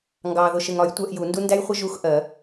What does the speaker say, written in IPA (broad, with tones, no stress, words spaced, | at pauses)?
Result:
ŋɡɑː˨ðʊ˨ʃɪ˨ŋɒ˩˥j tʷɜ˧˥˧ʔju˨˩˦ndu˦˥ ndæ˦˥jχʷɪ˦˥ ʒu˧˥˧x ʔɜ˨˩˦